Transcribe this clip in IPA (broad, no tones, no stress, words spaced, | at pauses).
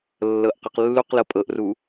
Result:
lːɤʔqʌqlːuqlɤ pʼɤʔru